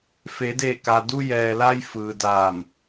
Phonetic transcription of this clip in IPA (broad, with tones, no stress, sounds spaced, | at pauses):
f eː˩˧ d eː˧˩ k aː˩ d u˧ j ɛː˩ l a˧ j f ɯː˩ d aː˧˩ m